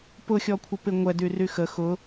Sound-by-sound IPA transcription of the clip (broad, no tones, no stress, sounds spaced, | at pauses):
p ʊ xʲ ɔ kʷʰ ə p ɪ ŋʷ ɛ d y r y x ə x ʊ